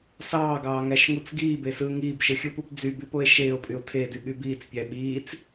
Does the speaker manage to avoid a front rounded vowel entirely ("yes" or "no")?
no